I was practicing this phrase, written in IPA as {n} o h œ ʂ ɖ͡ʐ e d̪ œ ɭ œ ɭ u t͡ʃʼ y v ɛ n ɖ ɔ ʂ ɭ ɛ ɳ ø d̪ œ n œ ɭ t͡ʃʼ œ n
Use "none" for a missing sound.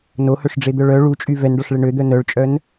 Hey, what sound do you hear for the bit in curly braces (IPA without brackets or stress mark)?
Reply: n